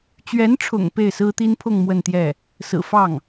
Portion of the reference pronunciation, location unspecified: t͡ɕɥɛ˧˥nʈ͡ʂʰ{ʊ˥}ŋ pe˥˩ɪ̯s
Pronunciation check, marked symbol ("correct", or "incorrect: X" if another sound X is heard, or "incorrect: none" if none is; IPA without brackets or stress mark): incorrect: ʊ̰˨˩